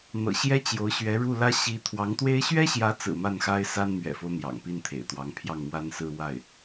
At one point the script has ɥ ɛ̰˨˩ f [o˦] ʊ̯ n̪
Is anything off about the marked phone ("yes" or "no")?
no